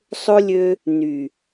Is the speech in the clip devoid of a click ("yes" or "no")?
yes